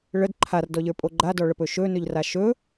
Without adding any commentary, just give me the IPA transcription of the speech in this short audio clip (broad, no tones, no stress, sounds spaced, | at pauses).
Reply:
ɭ ə d ǃʰ a r d ɔ ʎ ə˞ pʼ o ɡ͡ǃ a d ɔ ɭ ə p ɵ ʃ ɵ n ɵ ʎ r a ʃ ɵ